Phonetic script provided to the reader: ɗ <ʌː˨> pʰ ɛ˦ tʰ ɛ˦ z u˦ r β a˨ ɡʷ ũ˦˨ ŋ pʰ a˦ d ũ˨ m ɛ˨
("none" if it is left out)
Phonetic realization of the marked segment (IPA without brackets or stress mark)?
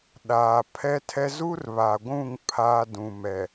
aː˨